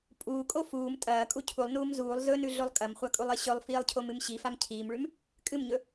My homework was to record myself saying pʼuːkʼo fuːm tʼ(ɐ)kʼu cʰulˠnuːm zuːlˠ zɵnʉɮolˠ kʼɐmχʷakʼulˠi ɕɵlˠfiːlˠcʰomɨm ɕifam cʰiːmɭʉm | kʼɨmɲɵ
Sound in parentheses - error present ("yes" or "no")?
yes